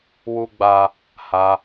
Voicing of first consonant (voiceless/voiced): voiced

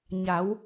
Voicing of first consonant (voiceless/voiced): voiced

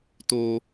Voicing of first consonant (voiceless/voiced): voiceless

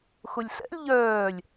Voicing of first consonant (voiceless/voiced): voiceless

